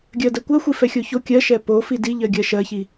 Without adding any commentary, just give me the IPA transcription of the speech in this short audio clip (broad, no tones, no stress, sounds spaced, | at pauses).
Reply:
ɡʲ ɜ d ɜ kʷ ɜ xʷ i f ɛ xʲ o ç o kʲ ɜ ʃ ɛ p o f i d i ʎ ɜ ɡʲ ɜ ʃ ɜ ç i